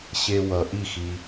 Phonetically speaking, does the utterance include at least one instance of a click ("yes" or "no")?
no